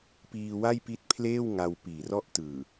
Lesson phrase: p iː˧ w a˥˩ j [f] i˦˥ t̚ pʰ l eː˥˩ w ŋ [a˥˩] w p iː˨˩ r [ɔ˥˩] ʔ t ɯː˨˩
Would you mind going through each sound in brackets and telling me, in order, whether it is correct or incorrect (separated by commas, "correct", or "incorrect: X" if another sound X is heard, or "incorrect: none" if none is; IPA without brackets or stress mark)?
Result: incorrect: p, incorrect: a˧, correct